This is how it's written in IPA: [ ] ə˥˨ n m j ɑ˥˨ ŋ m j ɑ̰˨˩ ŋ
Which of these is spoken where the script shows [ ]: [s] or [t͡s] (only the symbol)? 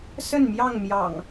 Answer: s